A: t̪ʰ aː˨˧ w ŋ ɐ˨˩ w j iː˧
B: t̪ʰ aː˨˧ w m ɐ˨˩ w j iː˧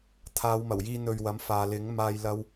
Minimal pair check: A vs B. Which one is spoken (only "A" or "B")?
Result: B